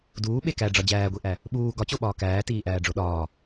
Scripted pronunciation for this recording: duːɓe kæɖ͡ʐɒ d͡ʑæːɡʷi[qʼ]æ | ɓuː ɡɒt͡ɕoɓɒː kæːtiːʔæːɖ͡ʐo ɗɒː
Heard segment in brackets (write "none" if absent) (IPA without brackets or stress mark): ʔ